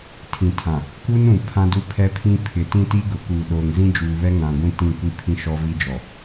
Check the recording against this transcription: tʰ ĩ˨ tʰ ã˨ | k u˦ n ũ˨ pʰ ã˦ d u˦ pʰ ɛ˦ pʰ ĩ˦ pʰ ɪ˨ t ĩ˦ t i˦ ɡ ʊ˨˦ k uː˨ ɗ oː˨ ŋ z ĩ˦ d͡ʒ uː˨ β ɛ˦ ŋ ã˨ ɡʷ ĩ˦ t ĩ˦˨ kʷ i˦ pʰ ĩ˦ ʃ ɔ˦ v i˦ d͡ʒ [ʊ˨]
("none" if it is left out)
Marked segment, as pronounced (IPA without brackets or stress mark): ɔ˨